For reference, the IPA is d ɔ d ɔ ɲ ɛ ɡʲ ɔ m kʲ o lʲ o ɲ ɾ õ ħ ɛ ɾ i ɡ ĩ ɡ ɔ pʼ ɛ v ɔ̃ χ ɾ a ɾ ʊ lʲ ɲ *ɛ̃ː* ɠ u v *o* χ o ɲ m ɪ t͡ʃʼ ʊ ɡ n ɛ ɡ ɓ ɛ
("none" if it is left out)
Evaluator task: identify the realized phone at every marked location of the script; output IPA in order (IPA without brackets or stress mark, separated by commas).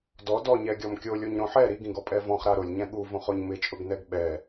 ɛ̃, õ